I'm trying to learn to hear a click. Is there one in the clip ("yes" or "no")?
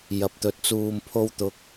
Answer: no